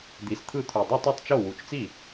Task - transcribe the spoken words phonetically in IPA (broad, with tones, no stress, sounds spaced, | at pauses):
d̪ i˨˩ s t̪ʰ ɯ˥˩ t̪ʰ u˨˩ dˤ ɯ˥˩ tˤ i˥˩ tˤ t͡ʃ o˥˩ w u˨˩ t͡ʃ t͡s i˥˩